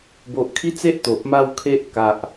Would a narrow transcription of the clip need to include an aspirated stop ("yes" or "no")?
yes